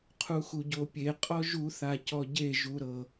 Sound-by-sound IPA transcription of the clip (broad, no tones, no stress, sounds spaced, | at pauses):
qʰ u x u ɟ o pʲ e qʼ ɔ ʒ u θ a c ɔ ɟ e ʒ u ɾ ɤ